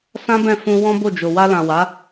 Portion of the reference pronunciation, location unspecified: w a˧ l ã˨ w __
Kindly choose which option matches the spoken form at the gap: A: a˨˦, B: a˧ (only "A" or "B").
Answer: A